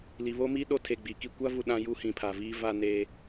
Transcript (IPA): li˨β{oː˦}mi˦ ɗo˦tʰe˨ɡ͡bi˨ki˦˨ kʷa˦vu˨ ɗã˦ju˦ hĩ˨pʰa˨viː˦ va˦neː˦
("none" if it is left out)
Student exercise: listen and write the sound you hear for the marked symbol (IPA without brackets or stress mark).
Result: o˦